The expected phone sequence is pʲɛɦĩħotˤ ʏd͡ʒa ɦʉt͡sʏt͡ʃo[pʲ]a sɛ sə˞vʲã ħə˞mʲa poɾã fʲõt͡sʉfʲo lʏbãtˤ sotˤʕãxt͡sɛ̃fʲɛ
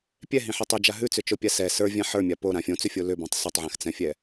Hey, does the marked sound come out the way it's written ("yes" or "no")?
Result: yes